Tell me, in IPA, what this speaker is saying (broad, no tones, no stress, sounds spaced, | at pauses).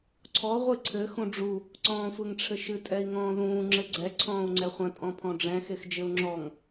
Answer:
ǀʰ ɔ ʁʷ ɨ ǀʰ ɘ x ũ ɖ͡ʐ u | ǀ ɔ̃ː sʷ e ŋ ʈ͡ʂʰ ɘ ʃ ɨ tʼ ɛ i̯ ŋ ɔ̃ː ð ũː ŋ͡ǁ ɘ ɡ͡ǀ ɛ ǀʰ ɔ̃ː u̯ ŋ͡ǀ ɛ χʷ ɐ̃ tʼ ɔ̃ pʰ ɔ̃ ɖ͡ʐ ɛ̃ x e x d͡ʒ ɘ u̯ ŋ͡ǁ ɔ ŋ